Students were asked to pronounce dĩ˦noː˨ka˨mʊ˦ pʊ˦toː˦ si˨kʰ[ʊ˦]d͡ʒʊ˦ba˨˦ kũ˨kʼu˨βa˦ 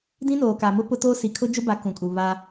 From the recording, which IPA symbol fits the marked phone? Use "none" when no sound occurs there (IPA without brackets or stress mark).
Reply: ʊ˦